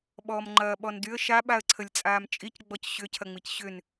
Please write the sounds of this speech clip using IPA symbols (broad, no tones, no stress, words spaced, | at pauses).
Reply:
ɓɔːmŋ͡ǃɐːɓɔndyə̯ ʃa ɓaə̯ǀʰəlʲt͡sʼaːmt͡ʃʼic ɡ͡bɔcɕʏ cʰɐŋ͡micɕʏn